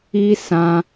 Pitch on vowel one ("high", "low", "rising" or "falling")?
high